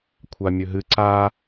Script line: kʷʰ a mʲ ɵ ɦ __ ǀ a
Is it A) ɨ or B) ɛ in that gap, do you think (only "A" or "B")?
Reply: A